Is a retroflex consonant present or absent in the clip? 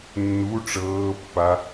present